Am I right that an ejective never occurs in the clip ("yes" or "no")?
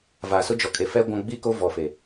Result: no